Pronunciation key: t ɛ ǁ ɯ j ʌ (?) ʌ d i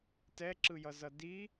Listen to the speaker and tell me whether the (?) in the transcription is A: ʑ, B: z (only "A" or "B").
B